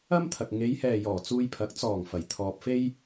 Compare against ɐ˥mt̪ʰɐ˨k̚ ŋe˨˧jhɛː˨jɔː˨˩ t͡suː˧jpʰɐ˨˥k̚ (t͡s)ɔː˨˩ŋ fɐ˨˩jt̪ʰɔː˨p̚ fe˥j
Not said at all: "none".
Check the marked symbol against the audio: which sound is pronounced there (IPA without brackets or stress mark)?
t͡s